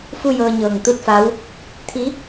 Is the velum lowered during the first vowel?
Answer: no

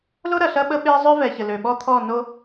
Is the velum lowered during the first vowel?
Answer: no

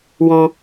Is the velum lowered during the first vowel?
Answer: yes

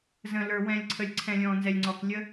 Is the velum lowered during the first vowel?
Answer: yes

